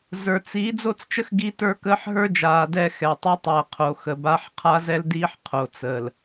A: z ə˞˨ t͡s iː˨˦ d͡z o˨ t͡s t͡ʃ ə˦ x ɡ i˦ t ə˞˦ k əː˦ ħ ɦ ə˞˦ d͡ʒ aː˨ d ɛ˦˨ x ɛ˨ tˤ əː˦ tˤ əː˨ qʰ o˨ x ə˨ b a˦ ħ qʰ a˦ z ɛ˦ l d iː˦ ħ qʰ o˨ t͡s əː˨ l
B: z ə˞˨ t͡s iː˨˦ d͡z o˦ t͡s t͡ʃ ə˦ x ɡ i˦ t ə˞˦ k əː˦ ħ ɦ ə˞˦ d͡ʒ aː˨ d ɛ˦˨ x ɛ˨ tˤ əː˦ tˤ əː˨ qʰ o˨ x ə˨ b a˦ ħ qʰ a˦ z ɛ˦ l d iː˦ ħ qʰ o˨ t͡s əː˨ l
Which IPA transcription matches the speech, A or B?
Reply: B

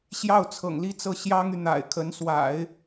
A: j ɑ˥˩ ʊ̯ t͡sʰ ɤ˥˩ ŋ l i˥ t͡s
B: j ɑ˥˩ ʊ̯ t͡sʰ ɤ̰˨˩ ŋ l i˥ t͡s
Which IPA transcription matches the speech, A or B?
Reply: B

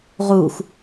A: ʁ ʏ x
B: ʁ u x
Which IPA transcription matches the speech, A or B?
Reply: B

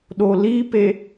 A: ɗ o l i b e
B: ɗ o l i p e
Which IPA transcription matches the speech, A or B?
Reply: B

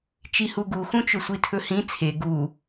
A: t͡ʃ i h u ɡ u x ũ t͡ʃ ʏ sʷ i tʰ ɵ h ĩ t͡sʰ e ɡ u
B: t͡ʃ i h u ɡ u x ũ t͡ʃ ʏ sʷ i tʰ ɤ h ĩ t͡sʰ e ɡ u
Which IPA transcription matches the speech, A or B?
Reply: A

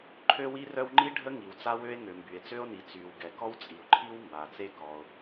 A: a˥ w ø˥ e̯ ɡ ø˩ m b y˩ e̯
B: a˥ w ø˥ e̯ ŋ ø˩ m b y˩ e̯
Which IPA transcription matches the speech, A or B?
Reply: B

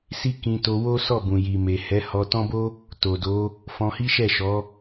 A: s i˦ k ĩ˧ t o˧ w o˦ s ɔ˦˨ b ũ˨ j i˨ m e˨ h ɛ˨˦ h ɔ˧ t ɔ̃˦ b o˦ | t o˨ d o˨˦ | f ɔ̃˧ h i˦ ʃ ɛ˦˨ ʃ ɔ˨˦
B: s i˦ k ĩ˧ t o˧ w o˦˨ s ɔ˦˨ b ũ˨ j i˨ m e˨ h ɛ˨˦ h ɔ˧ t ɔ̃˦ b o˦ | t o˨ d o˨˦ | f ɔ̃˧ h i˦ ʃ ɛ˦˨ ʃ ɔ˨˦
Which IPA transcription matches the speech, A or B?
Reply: A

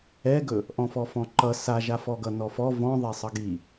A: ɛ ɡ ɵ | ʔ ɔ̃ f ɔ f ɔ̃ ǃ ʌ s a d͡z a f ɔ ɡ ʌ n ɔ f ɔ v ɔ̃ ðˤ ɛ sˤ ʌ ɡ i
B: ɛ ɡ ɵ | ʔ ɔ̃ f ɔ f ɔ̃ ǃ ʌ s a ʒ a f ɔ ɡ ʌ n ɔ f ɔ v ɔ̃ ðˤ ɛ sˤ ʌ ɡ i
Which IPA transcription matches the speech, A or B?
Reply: B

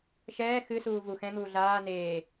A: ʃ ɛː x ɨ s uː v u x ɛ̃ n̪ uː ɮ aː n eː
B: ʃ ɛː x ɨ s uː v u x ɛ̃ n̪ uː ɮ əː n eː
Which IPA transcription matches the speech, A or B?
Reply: A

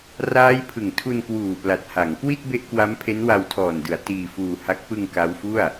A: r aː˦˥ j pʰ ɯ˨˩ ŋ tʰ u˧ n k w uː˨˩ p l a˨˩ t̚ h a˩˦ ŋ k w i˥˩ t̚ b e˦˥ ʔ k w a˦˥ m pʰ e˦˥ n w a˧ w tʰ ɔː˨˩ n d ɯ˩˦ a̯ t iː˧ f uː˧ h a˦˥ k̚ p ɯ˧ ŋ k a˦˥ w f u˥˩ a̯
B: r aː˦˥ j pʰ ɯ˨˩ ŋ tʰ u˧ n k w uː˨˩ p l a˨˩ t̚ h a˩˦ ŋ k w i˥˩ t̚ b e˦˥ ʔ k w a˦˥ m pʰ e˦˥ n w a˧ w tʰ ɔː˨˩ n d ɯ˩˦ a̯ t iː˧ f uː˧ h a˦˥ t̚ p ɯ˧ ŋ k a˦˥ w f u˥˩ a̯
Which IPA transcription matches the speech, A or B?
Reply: A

